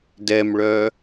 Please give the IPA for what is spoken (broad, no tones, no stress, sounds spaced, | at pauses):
d ɛ m ɭ œ